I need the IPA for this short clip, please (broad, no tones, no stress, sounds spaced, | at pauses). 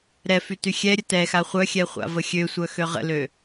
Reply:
ɾ ɛ f y t y xʲ ɛ ɾʲ ə t ɛ x a χʷ œ xʲ ɛ χʷ a̰ v ə xʲ ø sʷ œ x ø ʁ ə̰ l ø